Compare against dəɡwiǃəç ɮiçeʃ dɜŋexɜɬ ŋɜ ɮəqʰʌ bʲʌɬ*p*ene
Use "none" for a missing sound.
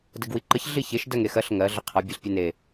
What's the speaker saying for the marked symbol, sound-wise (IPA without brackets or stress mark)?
pʲ